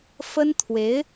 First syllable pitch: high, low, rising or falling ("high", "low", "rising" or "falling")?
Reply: high